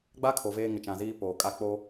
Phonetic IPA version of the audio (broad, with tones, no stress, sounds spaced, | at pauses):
ɡ͡b a˦ kʰ o˨ v eː˦ ŋ ɪ˨ t͡ʃ ã˨ z iː˦ p oː˨ kʼ a˦ k͡p o˦